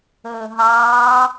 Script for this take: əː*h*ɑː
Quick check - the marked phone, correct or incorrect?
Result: incorrect